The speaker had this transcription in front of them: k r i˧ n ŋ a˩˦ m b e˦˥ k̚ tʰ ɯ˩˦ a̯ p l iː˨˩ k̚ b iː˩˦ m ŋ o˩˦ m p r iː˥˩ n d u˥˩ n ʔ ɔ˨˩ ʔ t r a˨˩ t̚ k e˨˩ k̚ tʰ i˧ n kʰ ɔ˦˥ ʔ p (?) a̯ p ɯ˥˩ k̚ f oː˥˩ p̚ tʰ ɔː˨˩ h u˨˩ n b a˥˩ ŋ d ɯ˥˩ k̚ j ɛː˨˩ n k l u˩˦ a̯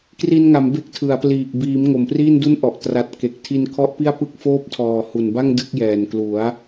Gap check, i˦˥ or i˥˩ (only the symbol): i˥˩